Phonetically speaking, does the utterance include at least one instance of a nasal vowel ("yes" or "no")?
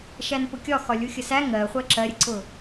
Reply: no